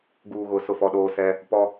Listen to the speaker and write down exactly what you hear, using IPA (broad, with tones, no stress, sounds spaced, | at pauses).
ɡ uː˨ ɣ ʊ˨ s ʊ˦˨ f ɔ˦ ɗ oː˦ s ɛ˦ | p ɔ˦